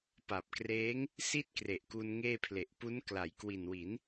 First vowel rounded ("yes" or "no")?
no